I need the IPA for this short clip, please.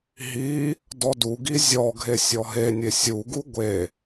ɦ i | d ɔ d u ɡ i zʲ ɔ ɡʱ e sʲ ɔ ɦ e nʲ e sʲ u ɡ u ɡʷ e

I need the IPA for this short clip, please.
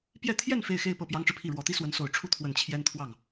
p j ɛ˥˧ t̪ʰ j ɛ˥˧ n f e˥˧ ɪ̯ x e˥˧ ɪ̯ p ɤ˥˩ p j ɑ˥ ŋ ʈ͡ʂ ɻ̩˨ pʰ i˥˩ ɻ w ɔ˧˥ t̪ i˥ s w ə˧˥ n s o˨˩ ʊ̯ ʈ͡ʂʰ u˥˩ t̪ʰ w ə˨˩ n t͡ɕʰ j ɛ˥ n t̪ʰ w ɑ˥˩ ŋ

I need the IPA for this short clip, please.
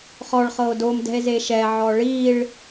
χ ɔ ɭ χ ɤ o̯ d o m d ɛ̤ e̯ z e ʃ ɛ ʕ ɔ ɭ i ɭ

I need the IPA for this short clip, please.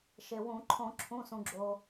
ʃ e˩ w ũ˧˩˧ ǃʰ õ˧˩˧ ǁʰ ũ˩˧˩ s ũ˩ ɡ͡ǁ o˩

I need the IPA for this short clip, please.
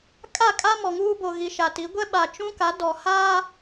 kʼ a˦˨ kʼ a˦ m ɔ˨ ŋ uː˦ b o˨ ɣ i˨ ʃ a˨ t i˨˦ ɡʷ ɛ˦ ɓ a˨ t͡ʃ ũ˦ k a˨˦ d ɔ˨ h aː˦

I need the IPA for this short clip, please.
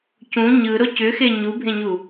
c ũ ɲ ɯ ɾ o c ʏ x e ɲ u bʱ ẽ ɲ u

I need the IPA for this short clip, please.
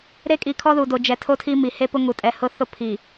ɾ e˦ kʼ i˨ kʰ ɔ˦ ð u˨ d o˨ d͡ʒ ɛ˨ tʰ o˦ tʰ i˦ m i˨ h e˦ p ʊ˦ ŋ u˨ tʼ ɛ˨ h ʊ˦ θ ʊ˦ pʰ i˨

